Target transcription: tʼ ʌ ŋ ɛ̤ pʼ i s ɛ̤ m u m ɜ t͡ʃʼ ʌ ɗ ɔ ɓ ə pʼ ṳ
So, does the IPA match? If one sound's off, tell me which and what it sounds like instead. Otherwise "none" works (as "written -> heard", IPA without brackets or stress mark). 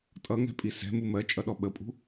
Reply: none